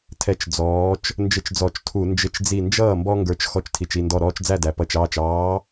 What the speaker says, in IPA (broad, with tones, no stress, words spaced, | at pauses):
tʰɛ˦t͡ʃd͡zɔː˨˥t͡ʃ | nd͡ʒɪ˦t͡ʃd͡zɔ˧˩˧t͡ʃtʰu˧˩˧ nd͡ʒɪ˧˩t͡ʃd͡zi˧˩nd͡ʒʌː˥˩ mbɔ˦ŋɡə˞˨˥t͡ʃ xɔ˧˩t͡ʃtʰi˩t͡ʃi˧˩ ndɔ˧˩ɾɔː˦t͡ʃd͡zæ˥˩dæ˩ pʌ˧˩t͡ʃɑː˥˩t͡ʃ ɑː˨˥